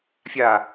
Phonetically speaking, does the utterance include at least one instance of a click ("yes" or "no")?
no